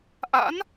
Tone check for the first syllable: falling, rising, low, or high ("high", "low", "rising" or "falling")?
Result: rising